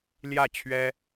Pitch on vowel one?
falling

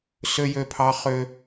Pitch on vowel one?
high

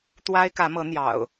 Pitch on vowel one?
high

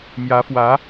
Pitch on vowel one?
rising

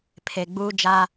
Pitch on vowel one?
low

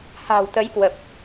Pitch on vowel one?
low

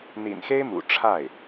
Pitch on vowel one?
low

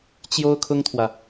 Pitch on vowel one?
high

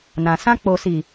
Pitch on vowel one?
low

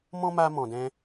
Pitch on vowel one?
high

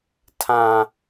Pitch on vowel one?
low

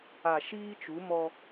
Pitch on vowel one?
low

